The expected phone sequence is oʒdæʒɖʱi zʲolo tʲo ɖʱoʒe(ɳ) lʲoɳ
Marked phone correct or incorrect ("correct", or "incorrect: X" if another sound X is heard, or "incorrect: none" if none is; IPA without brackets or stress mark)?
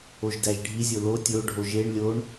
correct